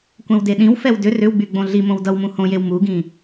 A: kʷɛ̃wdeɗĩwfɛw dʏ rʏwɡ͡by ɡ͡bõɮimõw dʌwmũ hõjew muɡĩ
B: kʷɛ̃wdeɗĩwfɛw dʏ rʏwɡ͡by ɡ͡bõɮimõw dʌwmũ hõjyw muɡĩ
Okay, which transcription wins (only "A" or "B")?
A